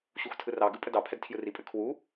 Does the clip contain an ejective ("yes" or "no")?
yes